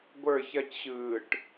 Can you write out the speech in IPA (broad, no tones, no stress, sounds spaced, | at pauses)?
ɡʷ ə˞ ç ɐ c ɕ ɯː ʈ